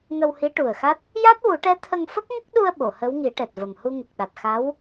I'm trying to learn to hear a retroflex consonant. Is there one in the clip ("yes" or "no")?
yes